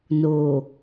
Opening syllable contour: low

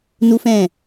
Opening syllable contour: high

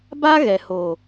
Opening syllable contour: high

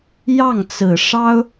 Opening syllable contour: falling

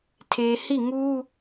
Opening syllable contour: low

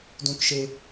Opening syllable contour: high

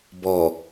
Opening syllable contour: low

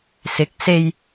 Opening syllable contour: rising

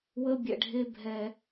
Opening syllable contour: high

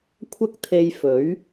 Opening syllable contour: high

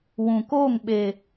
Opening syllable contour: low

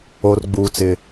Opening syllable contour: high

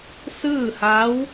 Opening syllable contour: falling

